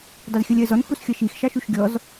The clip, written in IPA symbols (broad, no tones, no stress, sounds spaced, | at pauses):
dˤ ɪ z xʲ ʌ lʲ ɜ z ɔ n x u s xʲ ʌ ʃ i x ʃ ɑ ʃ u ʃ ɡʲ ɔ z